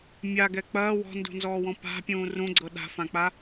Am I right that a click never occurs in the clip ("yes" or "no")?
no